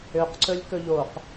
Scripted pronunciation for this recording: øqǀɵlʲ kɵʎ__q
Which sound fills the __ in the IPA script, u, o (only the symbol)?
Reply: o